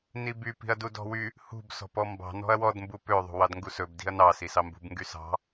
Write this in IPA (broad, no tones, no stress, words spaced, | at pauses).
nibypi̤ɐ̯du dɔ̤wy | hṳb sɔ̤pɔmbɑ̤ nɔ̤ɐ̯wɔdmbu pøðˤṳwɑd ŋɡusɵbdi̤ɐ̯ nɑ sisɑmbṳb ŋɡysɑ̤